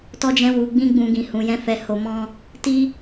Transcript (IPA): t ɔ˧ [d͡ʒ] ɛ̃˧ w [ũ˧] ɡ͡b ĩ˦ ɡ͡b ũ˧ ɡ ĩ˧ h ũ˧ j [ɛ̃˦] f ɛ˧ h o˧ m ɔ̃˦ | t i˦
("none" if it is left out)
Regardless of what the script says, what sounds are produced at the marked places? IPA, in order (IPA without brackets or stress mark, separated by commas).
d͡ʒ, u˧, ɛ̃˦